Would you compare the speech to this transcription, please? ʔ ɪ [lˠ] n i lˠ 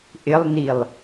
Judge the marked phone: correct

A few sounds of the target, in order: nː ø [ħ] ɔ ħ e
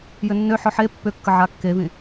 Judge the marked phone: correct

